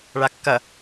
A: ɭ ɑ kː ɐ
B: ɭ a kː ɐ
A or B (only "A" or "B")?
B